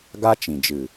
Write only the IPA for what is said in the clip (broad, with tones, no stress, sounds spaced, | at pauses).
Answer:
ɡ a˦ t͡ʃ ĩ˨ d͡ʒ ɨ˨